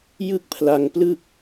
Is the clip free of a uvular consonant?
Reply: yes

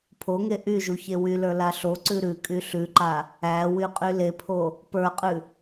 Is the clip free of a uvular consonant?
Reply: no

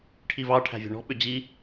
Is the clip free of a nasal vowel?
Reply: yes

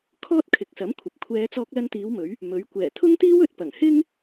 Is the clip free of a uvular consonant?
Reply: yes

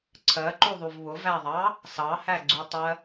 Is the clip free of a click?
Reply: no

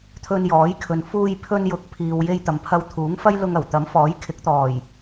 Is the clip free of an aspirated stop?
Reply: no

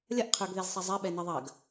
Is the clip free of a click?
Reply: yes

